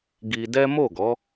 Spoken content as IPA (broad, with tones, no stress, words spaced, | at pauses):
ɡi˧dɛ˦ mo˦˨ɡɔ˨˦